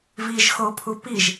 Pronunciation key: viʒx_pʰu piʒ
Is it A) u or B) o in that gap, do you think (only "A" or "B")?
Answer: B